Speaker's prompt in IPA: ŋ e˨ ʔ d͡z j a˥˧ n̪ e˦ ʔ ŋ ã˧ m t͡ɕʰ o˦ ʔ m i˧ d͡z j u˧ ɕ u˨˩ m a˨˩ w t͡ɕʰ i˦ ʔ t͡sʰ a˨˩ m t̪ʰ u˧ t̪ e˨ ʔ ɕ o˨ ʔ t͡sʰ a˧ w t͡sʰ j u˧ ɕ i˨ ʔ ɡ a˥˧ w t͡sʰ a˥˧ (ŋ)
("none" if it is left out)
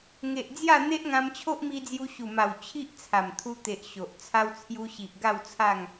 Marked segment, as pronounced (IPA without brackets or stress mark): ŋ